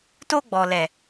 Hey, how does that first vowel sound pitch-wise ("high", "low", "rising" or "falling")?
high